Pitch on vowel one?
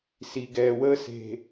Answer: low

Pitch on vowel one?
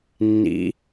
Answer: rising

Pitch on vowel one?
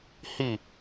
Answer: falling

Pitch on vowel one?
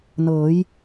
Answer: rising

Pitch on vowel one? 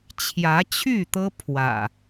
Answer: rising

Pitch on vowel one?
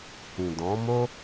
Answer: low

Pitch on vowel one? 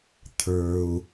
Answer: low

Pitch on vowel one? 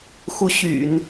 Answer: rising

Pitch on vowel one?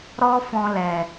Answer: high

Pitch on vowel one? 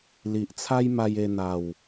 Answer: low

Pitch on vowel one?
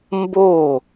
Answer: falling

